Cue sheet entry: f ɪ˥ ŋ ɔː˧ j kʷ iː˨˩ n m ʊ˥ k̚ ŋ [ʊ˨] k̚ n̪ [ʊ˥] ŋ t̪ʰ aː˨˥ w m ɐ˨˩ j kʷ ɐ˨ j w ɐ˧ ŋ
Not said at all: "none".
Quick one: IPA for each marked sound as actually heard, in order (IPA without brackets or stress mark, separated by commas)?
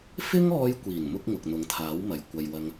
ʊ˨, ʊ˨˥